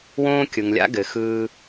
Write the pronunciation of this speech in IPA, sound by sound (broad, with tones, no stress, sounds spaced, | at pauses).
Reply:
w õː˦ kʲ ɯ˨ ŋ lʲ a̰˦ ɡ ɘ˨ x ɯː˧